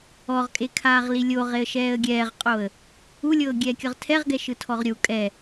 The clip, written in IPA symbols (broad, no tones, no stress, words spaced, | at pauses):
ɔʁkʼe kʰaːʁlilʲoʁeə̯ ʃɛːə̯ɡʲɛːʁqʼoə̯ | ulʲɤːɡʲɛː kʲɤʁtʰɛʁɡɛʃɯ tʰɔʁɾʲu kʼɛ